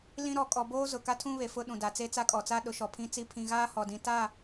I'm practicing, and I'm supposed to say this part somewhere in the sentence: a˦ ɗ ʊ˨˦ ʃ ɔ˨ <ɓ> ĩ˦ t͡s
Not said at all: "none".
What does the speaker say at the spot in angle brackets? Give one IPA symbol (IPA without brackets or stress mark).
pʰ